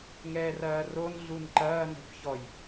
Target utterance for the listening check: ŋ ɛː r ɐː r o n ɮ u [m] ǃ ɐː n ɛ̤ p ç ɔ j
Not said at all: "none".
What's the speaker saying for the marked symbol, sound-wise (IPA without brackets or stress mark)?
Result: n